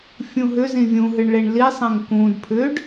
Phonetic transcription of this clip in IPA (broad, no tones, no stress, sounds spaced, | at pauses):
fʲ ũ ɦ ʏ z ĩ vʲ ũ ɦ ɨ ɳ ɭ e ɳ l i sˤ ẽ ŋ k ũ d pʰ ʏ ɖ